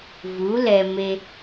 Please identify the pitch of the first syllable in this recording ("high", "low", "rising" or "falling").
rising